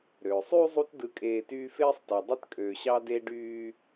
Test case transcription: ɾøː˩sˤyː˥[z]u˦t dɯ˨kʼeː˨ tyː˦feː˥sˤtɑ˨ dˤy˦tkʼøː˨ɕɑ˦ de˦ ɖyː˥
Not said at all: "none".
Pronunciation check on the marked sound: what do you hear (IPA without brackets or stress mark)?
zˤ